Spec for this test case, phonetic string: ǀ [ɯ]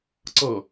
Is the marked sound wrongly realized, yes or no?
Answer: yes